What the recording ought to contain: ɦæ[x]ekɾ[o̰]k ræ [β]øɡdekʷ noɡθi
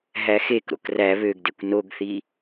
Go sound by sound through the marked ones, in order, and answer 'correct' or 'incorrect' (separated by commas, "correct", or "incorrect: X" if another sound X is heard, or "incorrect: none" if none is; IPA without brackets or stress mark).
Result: correct, correct, correct